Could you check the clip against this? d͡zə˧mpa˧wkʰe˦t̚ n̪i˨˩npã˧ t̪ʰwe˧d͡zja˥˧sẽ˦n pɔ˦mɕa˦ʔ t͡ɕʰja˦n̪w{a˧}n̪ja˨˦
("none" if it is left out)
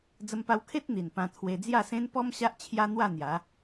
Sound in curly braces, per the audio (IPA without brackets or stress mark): a˥˧